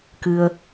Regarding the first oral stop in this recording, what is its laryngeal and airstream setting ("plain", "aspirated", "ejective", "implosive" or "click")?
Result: plain